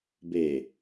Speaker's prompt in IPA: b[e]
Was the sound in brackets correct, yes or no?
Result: yes